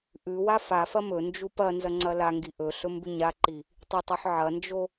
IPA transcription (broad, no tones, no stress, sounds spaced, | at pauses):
ʔ ʉ w a f a f ɐ m ɵ n d͡ʒ u p ɐ n z ɐ ŋ͡ǀ ɐ l a ŋ ɡ i ʔ ɵ ɬ ɵ m b ʉ ɲ a ǃ i | tˤ e tˤ ʉ ħ ʕ ɐ n d͡ʒ o